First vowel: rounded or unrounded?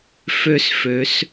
rounded